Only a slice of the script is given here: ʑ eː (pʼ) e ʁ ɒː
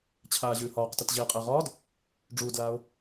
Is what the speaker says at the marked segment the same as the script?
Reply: no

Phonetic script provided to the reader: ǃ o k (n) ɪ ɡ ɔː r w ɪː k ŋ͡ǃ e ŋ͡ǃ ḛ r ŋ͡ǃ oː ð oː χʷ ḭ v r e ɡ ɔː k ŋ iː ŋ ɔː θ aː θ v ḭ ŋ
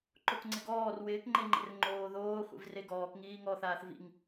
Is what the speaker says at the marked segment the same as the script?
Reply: no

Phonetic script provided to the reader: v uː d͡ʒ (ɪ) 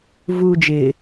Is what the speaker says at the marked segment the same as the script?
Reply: yes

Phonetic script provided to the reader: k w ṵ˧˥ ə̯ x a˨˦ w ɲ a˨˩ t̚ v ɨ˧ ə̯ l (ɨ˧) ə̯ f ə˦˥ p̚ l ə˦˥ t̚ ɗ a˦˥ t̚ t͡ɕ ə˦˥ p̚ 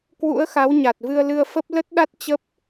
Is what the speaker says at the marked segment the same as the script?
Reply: yes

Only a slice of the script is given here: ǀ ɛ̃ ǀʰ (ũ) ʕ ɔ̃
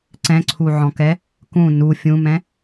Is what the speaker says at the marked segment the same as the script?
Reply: no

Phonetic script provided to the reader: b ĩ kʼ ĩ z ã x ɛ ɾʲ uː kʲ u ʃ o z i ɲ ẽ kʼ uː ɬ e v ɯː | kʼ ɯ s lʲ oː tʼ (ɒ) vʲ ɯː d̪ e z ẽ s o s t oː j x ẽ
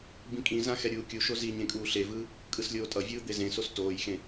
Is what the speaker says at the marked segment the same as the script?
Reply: no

